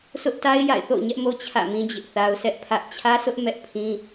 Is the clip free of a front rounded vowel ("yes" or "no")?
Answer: yes